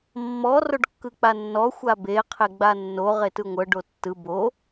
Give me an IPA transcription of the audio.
mːɔ roɖkːɯk͡panːɔ xʷabe qʰeɡ͡banːo ʁetɯŋʷɤ ɖotːɯ bo

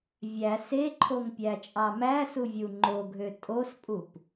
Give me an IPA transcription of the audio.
vʲæ seǃʰoŋpʲæt͡ʃʼɑ mæsuvʲu ŋ͡ǃoɡʱø tʼospʼup

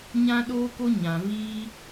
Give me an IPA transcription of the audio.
ɲã˦ ɗoː˦ko˦ ɲã˨viː˦

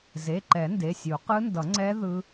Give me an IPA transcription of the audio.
ze˩˧˩ǃɛ˨˩˦ nde˩˧˩sʲu˨˩˦ qɯ˦˥ndʌ˨˩˦ŋ͡ǀɛ˦˥ ðɯ˦˥

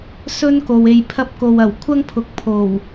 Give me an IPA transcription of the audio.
sɵ˥nko˨w e˨jpʰɐ˧p̚ko˨wɐ˨˩w kʷʰɐ˥ŋpʰʊ˨˥k̚ pʰo˨˩w

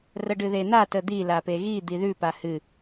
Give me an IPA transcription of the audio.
rəɖɨðen̪a təd̪i lapeɣi d̪iðʉ pahɨ

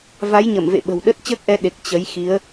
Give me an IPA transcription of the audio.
va˨˦jɲə˧˩mvḛ˧˨ ɓə̤˨˩wɗə˦˥t̚ t͡ɕəː˦˥k̚ʔɛ˨˦ ɗe˨˩k̚ t͡ɕə˨˦j xi˨˦ə̯

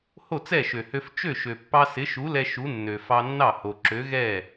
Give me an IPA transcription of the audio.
ho˥˩t͡sɛ˥˩ʃø˩hø˧f t͡ʃø˥˩ ʃø˩pːɑ˧ sɪ˨˥ʃu˨˥ lɛ˧ ʃu˨˥nːø˩fɑ˧nːɑ˥˩ ho˩ǁø˨˥ɣɛ˥˩

